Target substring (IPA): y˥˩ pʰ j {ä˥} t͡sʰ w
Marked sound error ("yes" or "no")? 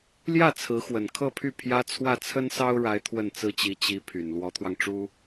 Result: no